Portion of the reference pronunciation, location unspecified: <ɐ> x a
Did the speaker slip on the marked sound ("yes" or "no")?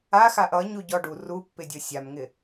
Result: yes